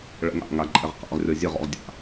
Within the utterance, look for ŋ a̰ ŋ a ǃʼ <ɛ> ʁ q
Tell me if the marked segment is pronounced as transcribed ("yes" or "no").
yes